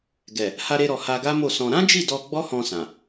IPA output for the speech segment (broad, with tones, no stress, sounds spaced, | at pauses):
ɡ ɛ˨ | h a˧ ɾ e˧ ɾ ɔ˨ h a˧ ɡ a˦ m o˦˨ s ɔ̃˧ ɾ ã˦ d͡ʒ i˦˨ d ɔ˧ ɡ͡b ɔ˦ h ɔ̃˧ s ã˨